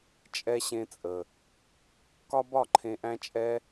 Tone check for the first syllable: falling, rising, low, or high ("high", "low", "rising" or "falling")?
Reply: high